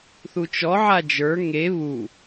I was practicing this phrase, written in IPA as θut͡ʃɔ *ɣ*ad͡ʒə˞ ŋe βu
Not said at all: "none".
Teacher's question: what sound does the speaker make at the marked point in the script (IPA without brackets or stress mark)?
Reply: ʕ